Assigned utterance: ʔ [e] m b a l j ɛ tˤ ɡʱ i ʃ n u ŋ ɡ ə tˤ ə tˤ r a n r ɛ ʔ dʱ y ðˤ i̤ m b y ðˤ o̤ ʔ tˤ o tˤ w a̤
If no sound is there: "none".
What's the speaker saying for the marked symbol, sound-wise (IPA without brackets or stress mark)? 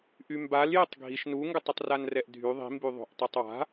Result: y